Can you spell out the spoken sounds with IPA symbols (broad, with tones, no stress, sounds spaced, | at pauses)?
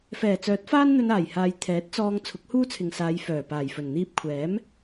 f ɛː˨˩ t͡s œː˨˥ t̚ f aː˥ n n̪ ɵ˧ n aː˨˩ j h aː˨ j t̪ʰ ɛː˨˥ t̚ t͡s ɔː˧ ŋ t͡sʰ ʊ˨˥ k̚ h uː˥ t͡sʰ ɪ˨ ŋ s aː˨˧ j f œː˨˩ p aː˨˩ j f ɵ˨˩ n n̪ iː˧ p̚ kʷʰ ɛː˨˥ m